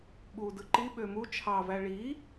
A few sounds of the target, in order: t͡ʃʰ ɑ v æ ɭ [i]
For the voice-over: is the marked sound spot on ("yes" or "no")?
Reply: yes